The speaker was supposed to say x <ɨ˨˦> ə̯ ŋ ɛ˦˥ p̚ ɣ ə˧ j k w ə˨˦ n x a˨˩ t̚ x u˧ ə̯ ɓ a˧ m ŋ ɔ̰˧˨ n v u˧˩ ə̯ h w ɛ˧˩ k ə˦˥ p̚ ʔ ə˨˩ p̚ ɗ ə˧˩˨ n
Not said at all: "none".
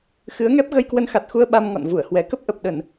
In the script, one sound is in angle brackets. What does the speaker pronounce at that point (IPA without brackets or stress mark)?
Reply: ɨ˨˦